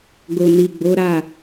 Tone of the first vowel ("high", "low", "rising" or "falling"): low